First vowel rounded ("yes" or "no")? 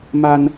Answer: no